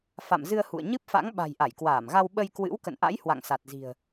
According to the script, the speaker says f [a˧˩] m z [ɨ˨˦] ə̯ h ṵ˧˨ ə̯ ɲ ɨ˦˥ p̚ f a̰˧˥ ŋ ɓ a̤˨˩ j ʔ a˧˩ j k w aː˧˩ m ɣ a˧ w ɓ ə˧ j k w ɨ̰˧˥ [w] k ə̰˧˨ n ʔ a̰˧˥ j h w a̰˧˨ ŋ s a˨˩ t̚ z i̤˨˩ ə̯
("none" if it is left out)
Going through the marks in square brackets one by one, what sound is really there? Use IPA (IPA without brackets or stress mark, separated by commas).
a̰˧˨, ɨ˧, w